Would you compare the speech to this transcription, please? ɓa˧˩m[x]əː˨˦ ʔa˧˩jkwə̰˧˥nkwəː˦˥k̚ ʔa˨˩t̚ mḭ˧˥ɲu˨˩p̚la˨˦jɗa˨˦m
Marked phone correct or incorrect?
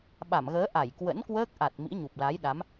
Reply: incorrect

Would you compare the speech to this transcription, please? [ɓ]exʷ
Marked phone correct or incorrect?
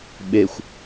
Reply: correct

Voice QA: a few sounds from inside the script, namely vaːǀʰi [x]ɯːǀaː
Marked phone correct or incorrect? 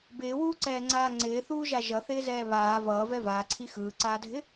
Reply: correct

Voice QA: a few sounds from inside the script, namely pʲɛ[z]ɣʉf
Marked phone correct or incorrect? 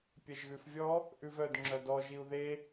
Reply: incorrect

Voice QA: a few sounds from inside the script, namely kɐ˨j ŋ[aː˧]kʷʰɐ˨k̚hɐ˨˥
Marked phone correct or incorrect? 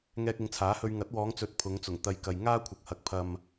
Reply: incorrect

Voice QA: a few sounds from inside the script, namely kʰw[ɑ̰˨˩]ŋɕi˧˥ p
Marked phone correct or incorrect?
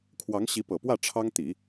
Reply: incorrect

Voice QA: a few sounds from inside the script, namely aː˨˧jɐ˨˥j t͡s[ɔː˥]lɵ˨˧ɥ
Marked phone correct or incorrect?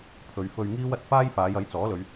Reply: incorrect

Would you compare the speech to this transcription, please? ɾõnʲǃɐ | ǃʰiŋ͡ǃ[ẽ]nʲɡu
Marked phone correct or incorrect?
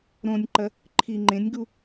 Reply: correct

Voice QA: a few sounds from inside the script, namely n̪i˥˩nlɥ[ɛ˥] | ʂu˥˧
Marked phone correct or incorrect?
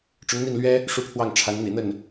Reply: correct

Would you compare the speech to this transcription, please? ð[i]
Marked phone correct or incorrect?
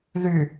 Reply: incorrect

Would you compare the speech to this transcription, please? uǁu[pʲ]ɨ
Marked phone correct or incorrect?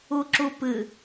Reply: incorrect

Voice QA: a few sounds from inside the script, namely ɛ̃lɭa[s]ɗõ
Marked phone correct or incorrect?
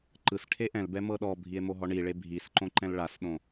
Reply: correct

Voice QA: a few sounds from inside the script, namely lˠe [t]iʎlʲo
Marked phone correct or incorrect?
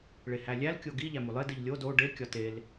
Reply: incorrect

